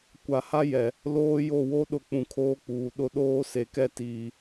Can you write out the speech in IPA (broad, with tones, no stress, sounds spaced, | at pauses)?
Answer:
kʷ a˨ h a˦ j ɛ˨ | l oː˦ j o˦˨ w o˦ ɗ ʊ˨ k͡p ũ˨ kʰ oː˦ k͡p uː˨ ɗ ʊ˦ ɗ oː˦ s e˨ k ɛ˦ t iː˨